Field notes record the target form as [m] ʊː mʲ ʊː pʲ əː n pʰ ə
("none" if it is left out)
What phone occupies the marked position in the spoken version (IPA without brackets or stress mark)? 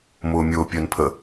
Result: m